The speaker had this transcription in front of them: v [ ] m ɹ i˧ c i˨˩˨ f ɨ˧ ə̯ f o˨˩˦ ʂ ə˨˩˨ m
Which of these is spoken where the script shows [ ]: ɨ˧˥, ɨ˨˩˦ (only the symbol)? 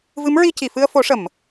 ɨ˧˥